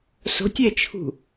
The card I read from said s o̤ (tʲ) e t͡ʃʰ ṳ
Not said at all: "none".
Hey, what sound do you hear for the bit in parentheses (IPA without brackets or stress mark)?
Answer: tʲ